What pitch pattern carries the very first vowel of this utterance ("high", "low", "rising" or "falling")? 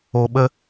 low